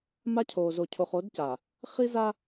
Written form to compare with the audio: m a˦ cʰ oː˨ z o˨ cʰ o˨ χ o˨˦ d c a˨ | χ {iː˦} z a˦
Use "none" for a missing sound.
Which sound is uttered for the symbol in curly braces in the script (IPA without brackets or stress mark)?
i˦